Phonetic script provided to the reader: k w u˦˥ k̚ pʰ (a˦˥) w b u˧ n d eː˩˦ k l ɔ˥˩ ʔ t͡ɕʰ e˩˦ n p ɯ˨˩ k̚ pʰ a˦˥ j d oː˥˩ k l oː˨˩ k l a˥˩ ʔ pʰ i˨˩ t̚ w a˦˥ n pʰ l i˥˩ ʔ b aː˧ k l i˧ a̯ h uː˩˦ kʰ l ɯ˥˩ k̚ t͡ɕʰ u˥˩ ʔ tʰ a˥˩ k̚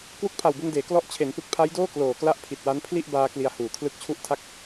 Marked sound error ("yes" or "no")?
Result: yes